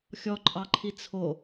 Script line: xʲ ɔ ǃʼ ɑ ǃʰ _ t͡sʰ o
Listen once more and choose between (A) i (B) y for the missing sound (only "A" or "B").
A